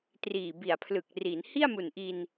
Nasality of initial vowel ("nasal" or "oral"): oral